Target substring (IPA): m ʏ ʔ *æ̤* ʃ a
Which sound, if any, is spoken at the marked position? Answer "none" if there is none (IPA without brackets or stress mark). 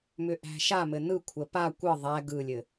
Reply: æ̤